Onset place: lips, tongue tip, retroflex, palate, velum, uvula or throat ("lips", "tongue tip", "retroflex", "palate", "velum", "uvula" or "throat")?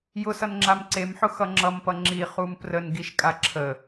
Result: palate